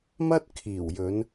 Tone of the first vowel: high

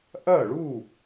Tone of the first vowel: falling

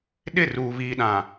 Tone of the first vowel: falling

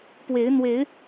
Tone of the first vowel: rising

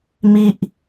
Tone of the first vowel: high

